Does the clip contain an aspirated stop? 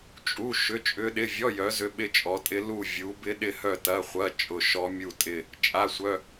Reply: no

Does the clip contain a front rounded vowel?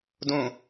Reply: no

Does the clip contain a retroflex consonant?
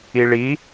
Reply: yes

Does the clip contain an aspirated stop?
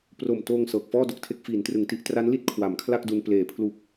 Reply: yes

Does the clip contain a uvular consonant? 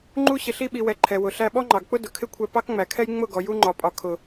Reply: no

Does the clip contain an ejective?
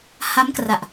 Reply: no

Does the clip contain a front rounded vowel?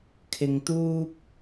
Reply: no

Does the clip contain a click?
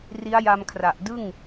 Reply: no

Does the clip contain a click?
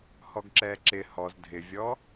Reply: yes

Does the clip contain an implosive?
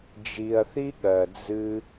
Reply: yes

